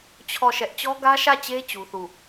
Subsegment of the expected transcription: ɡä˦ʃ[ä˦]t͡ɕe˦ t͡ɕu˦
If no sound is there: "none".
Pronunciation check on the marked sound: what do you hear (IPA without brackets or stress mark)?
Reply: ä˦˨